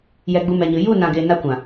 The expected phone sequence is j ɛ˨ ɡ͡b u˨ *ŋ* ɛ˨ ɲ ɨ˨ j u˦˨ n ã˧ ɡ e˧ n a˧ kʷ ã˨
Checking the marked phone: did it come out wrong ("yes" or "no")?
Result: yes